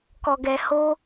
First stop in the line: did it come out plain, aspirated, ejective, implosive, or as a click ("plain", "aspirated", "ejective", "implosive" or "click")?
plain